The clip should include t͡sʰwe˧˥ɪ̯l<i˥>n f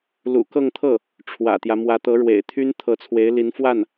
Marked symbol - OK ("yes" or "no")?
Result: no